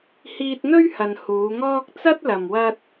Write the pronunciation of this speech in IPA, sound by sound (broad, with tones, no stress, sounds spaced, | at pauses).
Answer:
h iː˧ t̚ n̪ ɵ˥ ɥ h ɐ˨ n h uː˨˧ ŋ ɔː˥ k̚ t͡s ɐ˥ t̚ l ɐ˨ m w ɐ˧ t̚